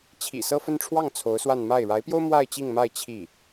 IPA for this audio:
t͡ɕʰ ḭ˨˩ s ɤ˥˧ f ə˥˧ n ʈ͡ʂʰ w ɑ˥˩ ŋ t͡sʰ o˧˥ ʊ̯ s w a˥˧ n m a˥˩ ɪ̯ ɻ a˧˥ ɪ̯ p j o˥ ʊ̯ m w a˥˧ ɪ̯ t͡ɕ i˥˧ ŋ m a˥˧ ɪ̯ t͡ɕʰ i˥˩

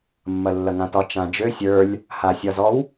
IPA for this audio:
mː ɐ lː ɐ ŋ ã t ɒ t͡ʃ ã d͡ʒ ø sʲ ə˞ lʲ | h a sʲ ɒ z ɔ w

